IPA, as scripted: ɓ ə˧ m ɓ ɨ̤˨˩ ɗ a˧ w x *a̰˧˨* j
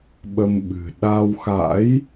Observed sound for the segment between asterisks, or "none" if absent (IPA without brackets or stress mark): a̰˧˥